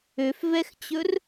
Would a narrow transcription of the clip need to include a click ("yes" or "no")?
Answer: no